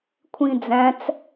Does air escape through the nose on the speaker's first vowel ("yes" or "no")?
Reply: yes